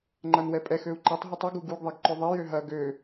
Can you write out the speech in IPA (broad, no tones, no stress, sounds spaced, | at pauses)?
ŋ͡ǃ ɐ n w ɛ pʼ ɛ x ø u̯ ǃ ɐ tˤ ɦ u tˤ u ɡ u ɡ u ɡ ðˤ e ɡ ǃ ø ðˤ e j ø ɦ ɐ ɡ ø